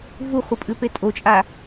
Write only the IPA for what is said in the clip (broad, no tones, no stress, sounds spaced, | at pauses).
v u χʷ ɐ pʼ ʉ p e tʼ o t͡ʃʼ a